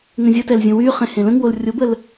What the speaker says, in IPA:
ŋ ə̃ zʲ ə t ɛ l zʲ ə̃ w y χ ẽ h ẽ l ə̃ ŋ w o l rʲ o b ə l

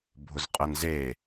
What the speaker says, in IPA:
bʱ ʊ z qʼ ə n z e

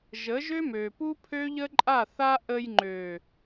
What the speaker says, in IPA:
ʒ ə˨˦ ʒ ø˦ m ø˨ p u˦ pʰ ø˦ ʎ ə˦ ǃʼ a˦˨ θ a˦ ʔ ə˧ j ŋ͡ǃ ø˨

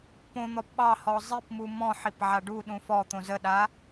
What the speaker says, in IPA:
p õ n̪ ɔ p ɓ ɑ h ɔ zˤ i p m u m ɔ̃ ħ i p ʕ a ɖ u ɗ ũ f ɔ t̪ õ z ə ɗ a

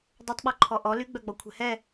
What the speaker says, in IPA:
dˤ ø tˤ ɓ ɔ ǃʰ ɔ ʔ ɔ l y ɡ͡b œ ɡ͡b ɔ kʷʰ ɛ̤ h ɛ

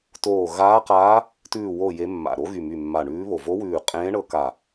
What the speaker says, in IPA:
t oː˧˩ ɣ aː˧˥ q aː˧˥ | t ʉː˧˩ w o˧˩ j e˧˥ mː a̰˧˩ ɾ o˧˥ ɣ y˧˩ m y˧˩ mː a˧˩ ɳ ʉː˧˥ β o˧˩ v o˧˥ w ʉː˧˩ qʼ ẽː˧˥ ɳ ɤ˧˥ k a˧˩

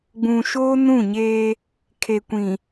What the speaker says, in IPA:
ɡ͡b ũ˨ ʃ oː˦ n ũ˦˨ ɲ eː˦ | kʰ e˨ kʷ ĩ˨

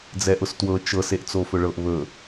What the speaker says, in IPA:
d͡z ɛ ʔ ʊ s t w ɤ t͡ʃ ɤ s e ʔ t͡s o f ɵ ɭ ɤ ʔ β ɵ

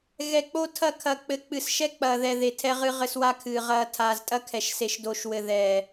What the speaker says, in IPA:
ɣ ɛ˨ k͡p o˦ tʰ ɐ˦ kʰ ɐ˨ k͡p ɘ˨ k͡p ɨ˨ s ʃ ɛ˦ k͡p ɐː˨ ð ɛ˨ ð e˨ tʰ ɛ˦ ʁ ɨ˦ ʁ ɘ˦ s w a˦ kʰ ɨː˨ ʁ ɐː˦ tʰ aː˨ z tʼ ɐ˦ kʰ ɛ˨ ʃ s e˨ ʃ d o˦ ʃ w ɘ˦ ð ɛ˦˨

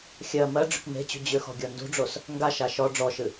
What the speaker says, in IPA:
xʲ ɜ m ɜ ɖ͡ʐ ʏ k m e̤ t͡ɕ ṳ d͡ʑ ʏ x ɔ̤ ɡʲ ɔ n d ṳ ɖ͡ʐ o s | ŋ ɡ a ʃ a ʃ ɔ ɖ͡ʐ ɔ ʃ ɨ

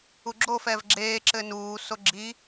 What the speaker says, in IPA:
u ɡ͡ǁ o f ɛ v ɡ͡ǁ eː ǁ ɘ n uː s o ɡ͡ǁ i

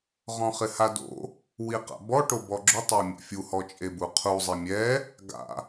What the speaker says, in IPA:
ʁ ɔ̃ χ ɪ h a d o̰ | w i q a̰ b ɔ ʈ o b ɔ ɡ͡ǁ ʊ tˤ a mʲ ɛ̰ fʲ u h ɔ t͡ʃʼ e b u qʰ u zˤ e mʲ ɛ | ɡ a̰

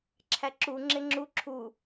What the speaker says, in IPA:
ǁʰ æ ǁ u ŋ͡ǁ e ŋ͡ǁ u ǁʰ u

